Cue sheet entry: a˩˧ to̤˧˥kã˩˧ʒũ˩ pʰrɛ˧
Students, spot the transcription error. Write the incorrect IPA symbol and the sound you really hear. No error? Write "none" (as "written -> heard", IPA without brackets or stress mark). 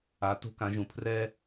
none